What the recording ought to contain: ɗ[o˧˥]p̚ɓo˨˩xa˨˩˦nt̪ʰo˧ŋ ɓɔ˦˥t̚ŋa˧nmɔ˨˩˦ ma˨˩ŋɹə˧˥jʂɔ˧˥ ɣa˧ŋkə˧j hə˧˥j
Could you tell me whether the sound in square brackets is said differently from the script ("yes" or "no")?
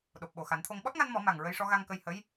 yes